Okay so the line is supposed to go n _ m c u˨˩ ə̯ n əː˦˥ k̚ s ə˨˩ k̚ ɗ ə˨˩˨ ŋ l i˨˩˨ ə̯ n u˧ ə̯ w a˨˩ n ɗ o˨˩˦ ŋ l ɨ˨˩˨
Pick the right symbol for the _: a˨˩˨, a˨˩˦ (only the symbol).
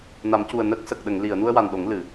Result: a˨˩˦